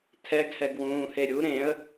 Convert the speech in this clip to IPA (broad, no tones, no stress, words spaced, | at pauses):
tʰɛɡhɛɡwũːhe ɾʲu ɾẽə̯